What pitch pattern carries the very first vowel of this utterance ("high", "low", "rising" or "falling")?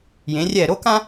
rising